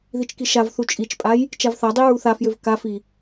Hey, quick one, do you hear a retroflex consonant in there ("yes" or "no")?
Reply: no